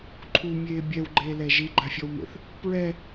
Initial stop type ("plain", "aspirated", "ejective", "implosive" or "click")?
click